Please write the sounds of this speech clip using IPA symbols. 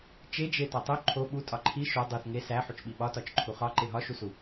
t͡ʃ e d͡ʒ e t ɒ tˤ o ǃʰ o ɓ u tʼ ɒ ǃʰ i ʃ o dˤ u θ ŋ e s æ ħ u t͡ʃ ɓ i ɓ ɒ t ɒ t͡ʃ ǃʰ u χ ɒ ǃ e ɦ ɒ ʃ u s u

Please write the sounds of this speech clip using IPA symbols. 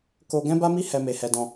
k o˧ ɡ ɛ̃˦ b a˦ m i˦ h ɛ˦ m e˧ h ɛ˧ d ɔ̃˧

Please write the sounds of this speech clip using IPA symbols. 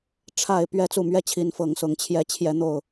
ʈ͡ʂʰ a˥˨ ɪ̯ p ɥ ɛ˥˨ t͡s u˥˨ m ɥ ɛ˦ t͡ɕʰ i˨˦ n f ɤ˨˦ ŋ s ʊ˨˦ ŋ t͡ɕʰ j ɛ˨˦ t͡ɕʰ j ɛ˨˦ n̪ o˨˩ ʊ̯

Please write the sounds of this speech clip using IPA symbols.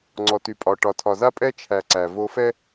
ŋ͡ǀ ɔ˨ t y˨ pʼ ɒ˨ ʈ ɒ˨ tʰ ɒ˨ z a˦ pʼ ɛ˦ t͡ʃʰ æ˨ ǀ æ˨ v o˦ f ɛ˦

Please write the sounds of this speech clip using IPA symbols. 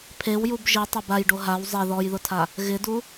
pʰ e w j u b ʒ i tˤ ɛ b a j ɖ o ɦ a w zˤ e ð ɔ j ð ʊ tʰ a | ɣ ɪ d u

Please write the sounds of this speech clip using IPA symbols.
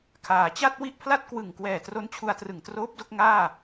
kʰ aː˩˦ t͡ɕ a˥˩ t̚ w i˥˩ ʔ pʰ l a˥˩ t̚ k w ɯ˨˩ ŋ k w ɛː˨˩ t r o˦˥ n t͡ɕʰ u˧ a̯ t r ɯ˨˩ ŋ t r oː˦˥ p̚ d o˥˩ k̚ ŋ aː˥˩

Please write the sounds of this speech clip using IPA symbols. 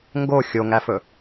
ŋ ɡ o xʲ o ŋ æ f ɵ

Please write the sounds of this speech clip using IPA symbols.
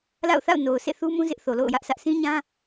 l a̰˦˨ ʊ̯ θ a̰˦˨ ʊ̯ n o˨ ʊ̯ sʰ ḛ˦˨ θ u˦ m ũ˦ z ɪ˦ ʔ θ o˨ l o̰˦˨ ʊ̯ j ä˦ ʔ sʰ ä˦ ʔ s ĩ˦ ɲ ã˦

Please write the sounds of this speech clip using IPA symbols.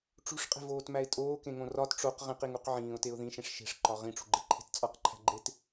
ʈ͡ʂ ṳ ʂ qʼ e̤ v oː t m æ ɪ̯ tʼ oː k ẽ ŋ õ r ɒ t ʈ͡ʂ o q ʁ ĩ q i ŋ u q ʕ ĩː ʊ̯ t e ʊ̯ ð ĩ ʃ ẽ ʂ ʃ e̤ ʂ ǃ ɒ ʁ ĩ ʈ͡ʂ ṳ ɡ͡ǃ e̤ ǃʰ e̤ t t͡sʼ ɒ q ǃʰ æ̤ ɡ͡ǃ e t

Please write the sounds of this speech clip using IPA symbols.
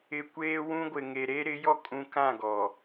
ɪ˨ kʷ eː˦ w ũ˦ ɡʷ ɪ˨ ŋ e˨ ɾ e˦ ɾ ɪ˨˦ j ɔ˦ kʼ ũ˨ k ã˦˨ ɡ ɔ˨

